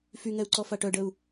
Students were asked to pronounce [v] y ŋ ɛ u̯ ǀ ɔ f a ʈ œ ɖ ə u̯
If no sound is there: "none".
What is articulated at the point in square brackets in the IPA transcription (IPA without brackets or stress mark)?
f